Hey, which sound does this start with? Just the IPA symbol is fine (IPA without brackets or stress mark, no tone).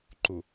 ǃ